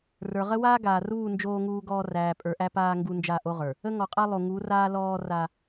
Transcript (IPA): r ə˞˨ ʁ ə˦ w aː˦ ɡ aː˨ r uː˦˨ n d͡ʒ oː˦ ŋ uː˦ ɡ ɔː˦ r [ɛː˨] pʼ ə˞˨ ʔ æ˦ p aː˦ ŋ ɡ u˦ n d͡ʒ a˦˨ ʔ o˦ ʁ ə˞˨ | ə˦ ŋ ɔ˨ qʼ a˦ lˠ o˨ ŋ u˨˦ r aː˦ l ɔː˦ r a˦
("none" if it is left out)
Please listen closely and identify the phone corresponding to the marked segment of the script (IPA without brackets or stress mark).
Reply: æː˨